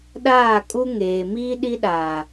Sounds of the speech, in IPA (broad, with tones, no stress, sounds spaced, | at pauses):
ɗ aː˦˨ kʼ u˦ ŋ eː˨ m iː˦ ɗ i˦ ɗ aː˨